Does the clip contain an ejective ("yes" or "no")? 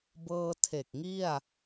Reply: no